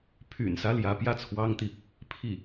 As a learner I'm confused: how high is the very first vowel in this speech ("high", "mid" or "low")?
high